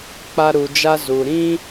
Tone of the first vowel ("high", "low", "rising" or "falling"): high